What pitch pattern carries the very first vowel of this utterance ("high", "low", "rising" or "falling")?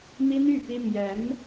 high